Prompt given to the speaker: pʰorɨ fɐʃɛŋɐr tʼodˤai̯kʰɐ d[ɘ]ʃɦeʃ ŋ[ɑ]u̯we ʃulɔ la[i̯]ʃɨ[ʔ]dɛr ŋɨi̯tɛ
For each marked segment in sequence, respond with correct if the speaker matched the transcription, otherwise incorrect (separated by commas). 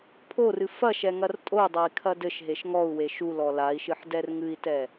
correct, incorrect, correct, incorrect